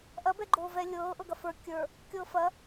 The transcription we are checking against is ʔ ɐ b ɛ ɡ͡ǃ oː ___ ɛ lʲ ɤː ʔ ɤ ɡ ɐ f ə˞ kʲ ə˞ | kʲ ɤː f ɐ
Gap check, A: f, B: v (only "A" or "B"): B